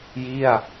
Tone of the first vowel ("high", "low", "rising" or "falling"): falling